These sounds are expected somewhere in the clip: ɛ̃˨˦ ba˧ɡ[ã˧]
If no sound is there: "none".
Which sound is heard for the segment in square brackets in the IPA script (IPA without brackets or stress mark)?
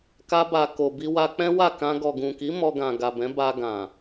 ã˨